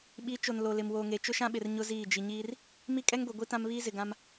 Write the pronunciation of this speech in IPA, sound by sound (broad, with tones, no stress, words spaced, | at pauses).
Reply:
ɓi˨˦ t͡ʃo˨n lo˨lɪ˨m woː˨ŋe˨ t͡ʃʊ˦ʃã˦ɓɪ˨r ɲʊ˦ziː˦˨ d͡ʒi˨ɲiː˦r | mi˦kʼɛ˦ŋɡʷe˨ɡʷi˦ tã˦mβiː˦zɪ˨ɡã˦m